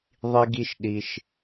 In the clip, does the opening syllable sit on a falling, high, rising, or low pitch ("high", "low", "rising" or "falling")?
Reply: high